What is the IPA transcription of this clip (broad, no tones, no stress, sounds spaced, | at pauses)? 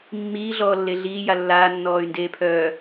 mː iː ɮ ɔː lː e ɮ iː j a lː aː nː ɔː y̯ n d eː pʰ œː